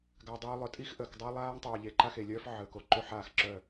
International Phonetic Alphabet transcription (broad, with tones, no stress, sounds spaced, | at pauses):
ɡ a˨ dˤ yː˨ lˠ œ˨ tʼ i˦ x ʔ əː˨ k dˤ œ˦ lˠ aː˦ ŋ tˤ œː˨ ʎ e˨ ǃ a˦ x e˨ lʲ œː˦ f ʕ əː˨ k o˨ ǃ ø˦ ħ aː˦˨ x ǁ œ˦˨